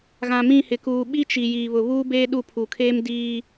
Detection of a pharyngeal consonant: absent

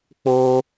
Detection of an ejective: absent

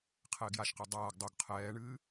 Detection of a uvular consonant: present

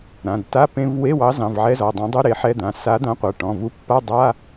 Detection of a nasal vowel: present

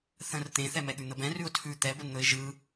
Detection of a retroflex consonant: absent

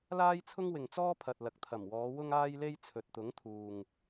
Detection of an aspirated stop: present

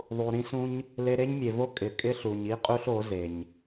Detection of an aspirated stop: absent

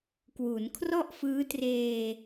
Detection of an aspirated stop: present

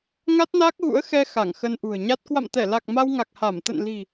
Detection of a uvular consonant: absent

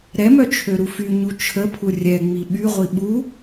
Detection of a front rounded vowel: present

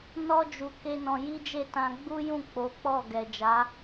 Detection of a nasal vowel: present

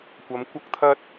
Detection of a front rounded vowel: absent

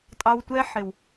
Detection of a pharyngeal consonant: present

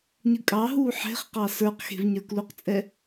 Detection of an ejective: present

